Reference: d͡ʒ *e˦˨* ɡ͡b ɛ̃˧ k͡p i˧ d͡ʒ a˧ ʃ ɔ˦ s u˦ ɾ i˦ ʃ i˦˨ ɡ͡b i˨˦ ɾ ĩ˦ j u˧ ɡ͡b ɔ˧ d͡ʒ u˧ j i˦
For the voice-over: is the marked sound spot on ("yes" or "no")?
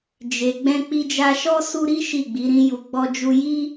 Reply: no